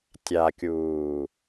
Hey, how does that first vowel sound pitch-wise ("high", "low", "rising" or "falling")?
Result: low